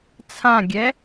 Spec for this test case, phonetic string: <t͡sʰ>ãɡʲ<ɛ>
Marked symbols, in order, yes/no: yes, yes

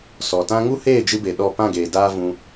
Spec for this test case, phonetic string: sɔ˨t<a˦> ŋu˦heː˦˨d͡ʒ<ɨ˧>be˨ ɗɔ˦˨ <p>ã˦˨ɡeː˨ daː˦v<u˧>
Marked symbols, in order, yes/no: no, yes, yes, no

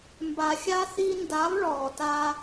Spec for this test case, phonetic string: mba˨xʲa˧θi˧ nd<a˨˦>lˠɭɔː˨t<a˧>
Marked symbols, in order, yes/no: yes, yes

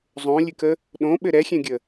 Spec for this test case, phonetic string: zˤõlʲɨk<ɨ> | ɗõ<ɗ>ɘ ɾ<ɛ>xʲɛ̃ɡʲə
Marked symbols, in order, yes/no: no, no, yes

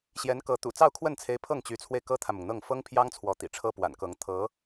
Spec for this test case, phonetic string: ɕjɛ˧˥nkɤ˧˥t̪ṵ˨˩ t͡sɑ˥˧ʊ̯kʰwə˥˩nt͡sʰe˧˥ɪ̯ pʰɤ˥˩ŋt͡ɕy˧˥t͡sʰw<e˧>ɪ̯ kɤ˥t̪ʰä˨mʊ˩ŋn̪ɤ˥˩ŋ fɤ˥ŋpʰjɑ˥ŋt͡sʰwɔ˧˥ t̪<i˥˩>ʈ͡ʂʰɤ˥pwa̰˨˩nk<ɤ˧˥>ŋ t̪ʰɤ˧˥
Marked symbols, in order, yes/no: yes, no, yes

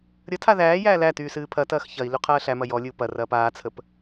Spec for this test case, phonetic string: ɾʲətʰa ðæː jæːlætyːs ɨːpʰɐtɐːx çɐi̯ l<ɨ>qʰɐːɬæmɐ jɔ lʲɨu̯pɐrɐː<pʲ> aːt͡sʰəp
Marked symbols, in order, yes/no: no, no

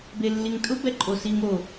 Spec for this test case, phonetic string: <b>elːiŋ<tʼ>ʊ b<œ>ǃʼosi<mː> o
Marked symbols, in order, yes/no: yes, yes, no, no

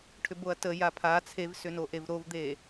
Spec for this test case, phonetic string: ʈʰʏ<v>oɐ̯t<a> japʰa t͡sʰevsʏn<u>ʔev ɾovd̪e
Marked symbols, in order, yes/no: no, no, no

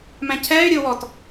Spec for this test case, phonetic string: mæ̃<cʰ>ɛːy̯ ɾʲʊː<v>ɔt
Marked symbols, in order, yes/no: yes, no

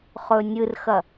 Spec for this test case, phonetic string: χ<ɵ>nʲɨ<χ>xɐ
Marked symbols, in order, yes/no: yes, no

